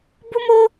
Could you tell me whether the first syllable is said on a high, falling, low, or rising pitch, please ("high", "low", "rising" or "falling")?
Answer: high